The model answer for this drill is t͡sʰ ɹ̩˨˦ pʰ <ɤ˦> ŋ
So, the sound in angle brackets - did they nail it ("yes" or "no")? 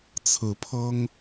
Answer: yes